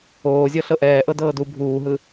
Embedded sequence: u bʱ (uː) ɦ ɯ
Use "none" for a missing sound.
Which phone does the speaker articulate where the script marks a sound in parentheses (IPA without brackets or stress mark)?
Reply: uː